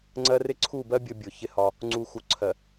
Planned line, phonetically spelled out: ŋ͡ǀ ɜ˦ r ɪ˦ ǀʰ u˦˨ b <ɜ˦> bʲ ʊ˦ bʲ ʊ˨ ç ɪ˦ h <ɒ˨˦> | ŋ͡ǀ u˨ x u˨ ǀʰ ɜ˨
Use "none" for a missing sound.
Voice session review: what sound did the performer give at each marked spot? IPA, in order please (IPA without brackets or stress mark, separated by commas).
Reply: ɜ˦, ɒ˦